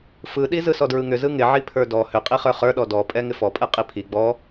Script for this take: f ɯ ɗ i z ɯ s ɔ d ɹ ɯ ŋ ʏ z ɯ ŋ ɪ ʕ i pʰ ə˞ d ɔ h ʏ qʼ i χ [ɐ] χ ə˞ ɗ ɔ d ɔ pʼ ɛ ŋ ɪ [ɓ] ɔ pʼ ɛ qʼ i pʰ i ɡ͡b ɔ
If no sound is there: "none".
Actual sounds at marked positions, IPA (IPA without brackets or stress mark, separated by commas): ə˞, f